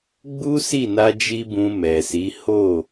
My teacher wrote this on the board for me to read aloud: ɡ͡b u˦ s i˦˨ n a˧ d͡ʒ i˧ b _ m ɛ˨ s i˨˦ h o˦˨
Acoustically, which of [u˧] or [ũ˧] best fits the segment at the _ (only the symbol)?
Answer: ũ˧